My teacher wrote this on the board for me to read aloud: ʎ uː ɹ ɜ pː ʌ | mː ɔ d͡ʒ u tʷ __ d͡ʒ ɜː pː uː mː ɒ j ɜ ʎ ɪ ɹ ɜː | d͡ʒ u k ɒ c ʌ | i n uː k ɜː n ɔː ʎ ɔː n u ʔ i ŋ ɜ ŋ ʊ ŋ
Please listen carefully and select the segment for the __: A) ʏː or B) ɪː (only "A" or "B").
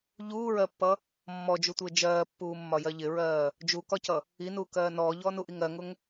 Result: B